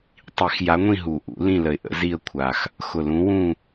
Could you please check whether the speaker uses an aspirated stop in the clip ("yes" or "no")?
yes